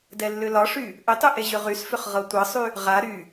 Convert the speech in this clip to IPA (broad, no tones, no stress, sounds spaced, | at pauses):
d ɛ lː ʏ l ɒ ʂ y | ʔ ʏ tˤ y ʔ e ʑ ʏ ʁ y s f ʏ χ ʁ ɤ tʷ ɤ sˤ y | ʁ a ɾ y